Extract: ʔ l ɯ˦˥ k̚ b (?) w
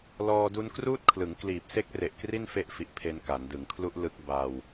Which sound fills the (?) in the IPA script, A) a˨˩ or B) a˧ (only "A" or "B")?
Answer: B